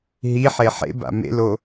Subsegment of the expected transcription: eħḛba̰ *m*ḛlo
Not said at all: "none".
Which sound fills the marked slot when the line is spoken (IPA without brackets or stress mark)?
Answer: m